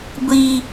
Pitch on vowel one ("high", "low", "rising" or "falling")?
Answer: high